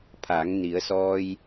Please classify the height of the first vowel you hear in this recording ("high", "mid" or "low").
low